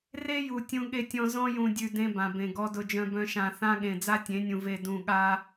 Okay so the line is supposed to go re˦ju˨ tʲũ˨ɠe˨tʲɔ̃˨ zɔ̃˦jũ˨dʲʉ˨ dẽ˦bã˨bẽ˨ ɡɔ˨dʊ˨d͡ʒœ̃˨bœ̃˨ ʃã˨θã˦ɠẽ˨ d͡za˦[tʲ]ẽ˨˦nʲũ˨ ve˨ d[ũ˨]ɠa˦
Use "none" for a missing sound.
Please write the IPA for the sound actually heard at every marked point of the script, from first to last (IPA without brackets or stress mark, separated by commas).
tʲ, ũ˨